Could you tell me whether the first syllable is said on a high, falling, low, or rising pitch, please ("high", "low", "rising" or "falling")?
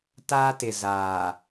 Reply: high